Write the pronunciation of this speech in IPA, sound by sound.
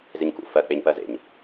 z e ɲ k ṵ f ɜ k͡p e ɲ p ɜ z ḛ ɲ

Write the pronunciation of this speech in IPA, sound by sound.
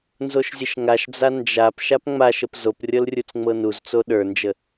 n z o ʃ zʲ ə ʃ ŋ a ʃ d͡z a n d͡ʒ a p ʃ a p ŋ͡m a ʃ ə p z o p rʲ ɤ l rʲ u t͡s ŋ͡m ɤ n u z t͡s o ɗ ə˞ n d͡ʒ ə

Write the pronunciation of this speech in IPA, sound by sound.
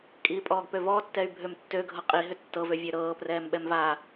kʼ iː pʼ ɔː ɡ p ø v ɔː tː ɛ y̯ bʱ ø m tː ø ɡʱ ɤ qʼ i ɦ ʏ tː ɤ v ø vʲ ø ɾ ɤː p r ɛː m ɓ ɛ m v aː

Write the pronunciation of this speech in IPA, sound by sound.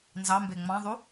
n z ɑ m b e ŋ͡m ɑ̃ ðˤ u

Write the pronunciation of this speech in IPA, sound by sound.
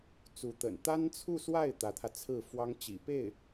t͡s u˧˥ t̪ ə̰˨˩ n t̪ a˥ n t͡sʰ u˥˧ s w a˥˩ ɪ̯ t̪ ä˧˥ t̪ʰ ä˧ t͡sʰ ɹ̩˥˩ f w ɑ˥ ŋ t͡ɕ ḭ˨˩ p e˥˩ ɪ̯

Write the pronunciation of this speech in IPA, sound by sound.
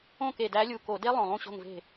õ˥˨ k e˧˩ d æ˧˥ lʲ u˧˩ k o˧˩˧ d e˥ lˠ õ˧˩ lˠ ũ˥˨ ɕ o̤˥˨ ŋ v e̤˥˨

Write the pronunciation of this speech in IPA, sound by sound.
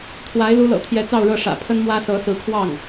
t̪ʰ w a˧˥ ɪ̯ l u˧˥ l ɤ̰˨˩ t̪ʰ j ɛ˧˥ t͡s ɑ˥˧ ʊ̯ ɻ ɤ˥˩ ʂ ä̰˨˩ pʰ ə˥ n m w ä˥ s ɤ˧˥ s ɹ̩˧˥ kʰ w ɑ˥˩ ŋ

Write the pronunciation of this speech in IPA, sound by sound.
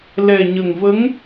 l ɛ˨˩ ɲ ə˨˩ ŋ v ə˧˥ ŋ

